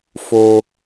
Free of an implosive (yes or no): yes